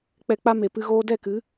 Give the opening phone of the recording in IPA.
k͡p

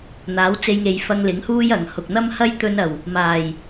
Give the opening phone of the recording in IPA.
n̪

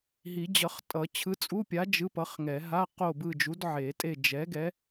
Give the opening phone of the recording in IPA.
ɦ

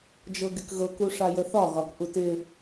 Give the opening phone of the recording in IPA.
d͡ʒ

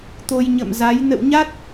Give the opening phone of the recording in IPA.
t̪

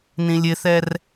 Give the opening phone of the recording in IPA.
n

